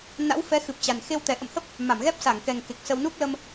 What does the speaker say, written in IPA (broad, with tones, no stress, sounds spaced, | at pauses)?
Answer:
n a̰˧˥ w f ɛ˨˦ x ɨ˨˩ p̚ t͡ɕ a˨˩ n x e˧ w t̪ ɛ˨˩ ʔ ə̰˧˨ m h ə˦˥ p̚ | m a˧˩ m ɣ ɛ˦˥ p̚ s a˧˩ ŋ k ɛ˨˩ ŋ k e˨˩ k̚ s ə˧ w n u˦˥ k̚ l ə˧ m